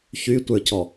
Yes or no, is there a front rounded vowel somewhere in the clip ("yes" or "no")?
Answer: yes